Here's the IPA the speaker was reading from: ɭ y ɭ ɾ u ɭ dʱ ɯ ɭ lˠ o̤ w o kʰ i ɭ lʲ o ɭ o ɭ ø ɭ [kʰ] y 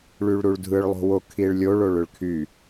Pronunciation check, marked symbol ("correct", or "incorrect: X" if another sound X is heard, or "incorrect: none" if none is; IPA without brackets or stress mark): correct